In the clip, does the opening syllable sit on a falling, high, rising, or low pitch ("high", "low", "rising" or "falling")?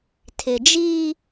low